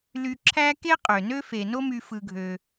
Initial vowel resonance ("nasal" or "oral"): oral